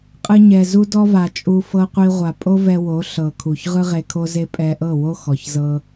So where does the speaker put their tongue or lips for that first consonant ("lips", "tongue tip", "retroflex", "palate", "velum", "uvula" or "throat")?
uvula